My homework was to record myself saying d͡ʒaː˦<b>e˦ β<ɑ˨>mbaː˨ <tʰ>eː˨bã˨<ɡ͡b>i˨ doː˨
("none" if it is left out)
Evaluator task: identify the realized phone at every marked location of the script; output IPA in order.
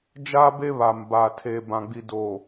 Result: b, a˨, tʰ, ɡ͡b

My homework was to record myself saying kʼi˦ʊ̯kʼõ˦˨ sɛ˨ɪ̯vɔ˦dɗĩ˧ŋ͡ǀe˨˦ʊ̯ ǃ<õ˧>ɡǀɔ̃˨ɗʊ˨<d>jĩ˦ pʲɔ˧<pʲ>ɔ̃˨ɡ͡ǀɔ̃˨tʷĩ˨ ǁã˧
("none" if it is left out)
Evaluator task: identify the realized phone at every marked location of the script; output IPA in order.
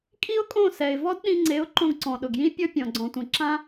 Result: õ˧, ɡ, pʲ

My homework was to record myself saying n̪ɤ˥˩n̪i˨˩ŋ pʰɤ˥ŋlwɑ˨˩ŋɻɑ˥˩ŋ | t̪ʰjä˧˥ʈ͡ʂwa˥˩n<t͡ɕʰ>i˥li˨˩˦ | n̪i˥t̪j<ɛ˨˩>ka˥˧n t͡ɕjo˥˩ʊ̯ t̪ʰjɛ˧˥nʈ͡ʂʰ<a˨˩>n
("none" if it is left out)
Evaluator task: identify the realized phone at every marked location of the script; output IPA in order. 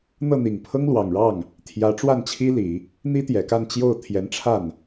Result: t͡ɕʰ, ɛ˨˩, a˥˩

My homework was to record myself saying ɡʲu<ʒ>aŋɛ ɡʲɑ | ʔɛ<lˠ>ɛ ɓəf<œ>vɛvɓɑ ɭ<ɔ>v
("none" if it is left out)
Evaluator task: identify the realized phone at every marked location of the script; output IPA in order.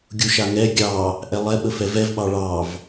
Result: ʃ, lˠ, ɛ, ɑ

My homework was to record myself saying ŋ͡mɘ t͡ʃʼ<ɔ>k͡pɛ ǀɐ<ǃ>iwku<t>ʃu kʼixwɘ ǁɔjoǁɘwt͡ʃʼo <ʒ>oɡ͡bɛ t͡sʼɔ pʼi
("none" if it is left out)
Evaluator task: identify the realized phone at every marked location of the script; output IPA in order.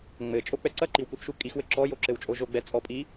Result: o, ǃ, θ, ʒ

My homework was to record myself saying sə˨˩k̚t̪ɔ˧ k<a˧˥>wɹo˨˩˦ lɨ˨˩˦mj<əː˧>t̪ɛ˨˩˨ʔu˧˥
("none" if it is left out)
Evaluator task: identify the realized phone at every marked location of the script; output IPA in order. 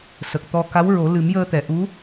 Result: a˧˥, əː˧

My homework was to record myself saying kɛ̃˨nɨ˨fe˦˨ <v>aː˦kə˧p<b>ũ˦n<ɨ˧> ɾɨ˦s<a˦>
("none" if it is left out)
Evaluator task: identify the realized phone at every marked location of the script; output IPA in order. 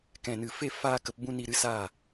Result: f, b, i˧, a˦˨

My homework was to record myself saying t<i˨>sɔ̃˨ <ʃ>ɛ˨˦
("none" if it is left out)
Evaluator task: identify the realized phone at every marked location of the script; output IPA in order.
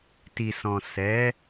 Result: i˨, s

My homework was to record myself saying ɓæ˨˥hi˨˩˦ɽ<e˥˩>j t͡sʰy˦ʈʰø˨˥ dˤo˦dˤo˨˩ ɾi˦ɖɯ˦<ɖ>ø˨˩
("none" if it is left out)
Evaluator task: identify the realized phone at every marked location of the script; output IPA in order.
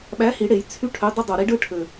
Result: e˨˩˦, ʈʰ

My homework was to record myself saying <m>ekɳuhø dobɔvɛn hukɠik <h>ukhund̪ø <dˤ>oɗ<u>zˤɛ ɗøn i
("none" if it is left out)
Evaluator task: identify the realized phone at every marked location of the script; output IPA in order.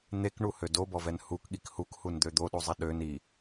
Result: n̪, h, d̪, u

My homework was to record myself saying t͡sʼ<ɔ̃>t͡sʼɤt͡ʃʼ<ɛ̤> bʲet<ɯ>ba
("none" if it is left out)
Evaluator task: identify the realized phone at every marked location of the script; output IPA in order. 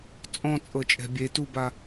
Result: ɔ̃, ɛ̤, u

